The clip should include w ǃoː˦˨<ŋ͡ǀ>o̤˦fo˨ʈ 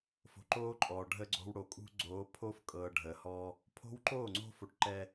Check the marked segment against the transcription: correct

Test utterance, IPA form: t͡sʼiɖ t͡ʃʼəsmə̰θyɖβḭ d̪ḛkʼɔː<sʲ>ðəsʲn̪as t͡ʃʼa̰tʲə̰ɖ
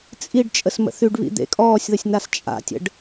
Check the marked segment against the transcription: correct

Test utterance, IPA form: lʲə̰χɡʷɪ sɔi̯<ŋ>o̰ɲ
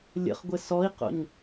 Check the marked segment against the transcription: incorrect: q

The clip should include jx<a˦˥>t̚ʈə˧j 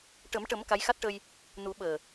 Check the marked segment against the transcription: correct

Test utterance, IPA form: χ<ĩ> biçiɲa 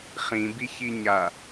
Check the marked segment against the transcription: correct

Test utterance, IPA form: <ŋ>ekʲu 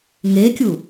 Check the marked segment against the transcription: correct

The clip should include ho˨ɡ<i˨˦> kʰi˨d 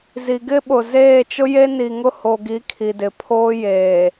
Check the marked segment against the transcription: correct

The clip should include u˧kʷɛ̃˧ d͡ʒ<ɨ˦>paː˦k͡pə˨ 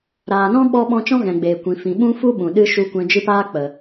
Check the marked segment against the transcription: correct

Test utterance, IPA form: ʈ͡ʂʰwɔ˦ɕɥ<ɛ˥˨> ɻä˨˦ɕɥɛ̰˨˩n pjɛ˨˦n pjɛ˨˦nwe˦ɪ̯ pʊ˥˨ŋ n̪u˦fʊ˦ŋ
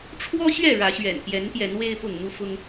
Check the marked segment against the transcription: correct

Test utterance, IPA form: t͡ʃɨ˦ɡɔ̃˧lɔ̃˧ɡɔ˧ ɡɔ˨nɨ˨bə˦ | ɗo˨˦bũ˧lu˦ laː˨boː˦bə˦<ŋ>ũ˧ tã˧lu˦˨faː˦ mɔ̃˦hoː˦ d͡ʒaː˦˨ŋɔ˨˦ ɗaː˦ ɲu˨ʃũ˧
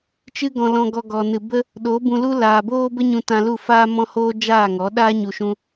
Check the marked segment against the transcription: incorrect: ɲ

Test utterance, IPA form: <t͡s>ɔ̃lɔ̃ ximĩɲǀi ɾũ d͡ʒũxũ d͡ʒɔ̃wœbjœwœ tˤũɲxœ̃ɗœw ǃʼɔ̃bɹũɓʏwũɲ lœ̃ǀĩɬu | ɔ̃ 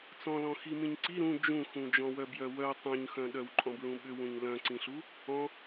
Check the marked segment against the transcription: correct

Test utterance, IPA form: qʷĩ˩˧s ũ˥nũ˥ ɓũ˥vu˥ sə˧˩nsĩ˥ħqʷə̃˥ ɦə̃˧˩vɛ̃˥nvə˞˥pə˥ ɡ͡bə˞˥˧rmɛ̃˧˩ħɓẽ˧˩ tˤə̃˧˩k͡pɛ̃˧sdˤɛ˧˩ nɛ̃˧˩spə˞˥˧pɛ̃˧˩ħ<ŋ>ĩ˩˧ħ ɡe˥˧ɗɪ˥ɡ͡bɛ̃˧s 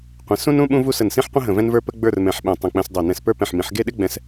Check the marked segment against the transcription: incorrect: m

